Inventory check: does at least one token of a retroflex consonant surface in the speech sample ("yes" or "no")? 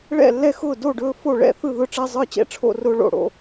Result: yes